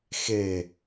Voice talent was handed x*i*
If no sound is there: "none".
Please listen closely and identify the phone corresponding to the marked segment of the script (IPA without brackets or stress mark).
e